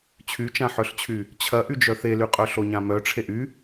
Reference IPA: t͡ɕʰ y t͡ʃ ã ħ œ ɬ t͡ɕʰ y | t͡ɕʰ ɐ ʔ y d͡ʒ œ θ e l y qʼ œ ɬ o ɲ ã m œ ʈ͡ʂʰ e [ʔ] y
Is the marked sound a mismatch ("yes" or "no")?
no